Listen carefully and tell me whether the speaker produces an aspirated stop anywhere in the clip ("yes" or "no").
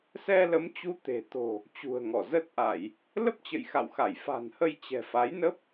no